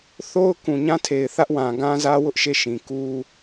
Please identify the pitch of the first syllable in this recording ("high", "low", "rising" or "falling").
high